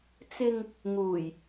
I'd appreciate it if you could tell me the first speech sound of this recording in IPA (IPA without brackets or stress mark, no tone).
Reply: t͡s